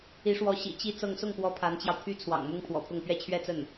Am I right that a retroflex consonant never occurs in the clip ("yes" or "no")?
no